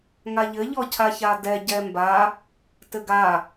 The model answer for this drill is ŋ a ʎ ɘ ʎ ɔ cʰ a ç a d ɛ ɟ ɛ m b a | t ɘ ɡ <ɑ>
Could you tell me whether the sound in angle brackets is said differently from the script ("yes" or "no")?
yes